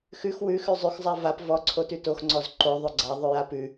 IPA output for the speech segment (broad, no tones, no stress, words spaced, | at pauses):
xʉx wʉxʉ zˤʉxzˤa vap vɔǀʰotʉ toxŋ͡ǀɔz ǃo ðˤʉɡ͡ǀaðˤʉja pʉ